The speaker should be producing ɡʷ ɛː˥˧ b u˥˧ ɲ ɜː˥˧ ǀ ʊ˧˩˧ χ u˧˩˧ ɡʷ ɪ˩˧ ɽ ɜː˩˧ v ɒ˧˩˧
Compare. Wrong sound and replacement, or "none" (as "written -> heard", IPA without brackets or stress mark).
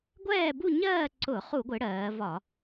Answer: none